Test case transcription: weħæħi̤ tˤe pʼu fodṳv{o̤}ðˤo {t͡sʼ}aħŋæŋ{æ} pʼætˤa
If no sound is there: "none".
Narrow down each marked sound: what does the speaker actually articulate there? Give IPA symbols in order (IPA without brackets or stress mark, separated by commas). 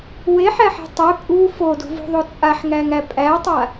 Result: ṳ, t͡sʼ, æ